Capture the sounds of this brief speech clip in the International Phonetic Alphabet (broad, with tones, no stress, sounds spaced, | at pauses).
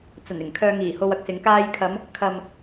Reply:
t͡s ɐ˨˩ n ɪ˨˩ ŋ kʰ œː˧ ŋ iː˨˩ h o˧ w ɐ˧ k̚ s ɪ˨˧ ŋ k aː˧ j kʰ ɐ˨˧ m | kʰ ɐ˨ m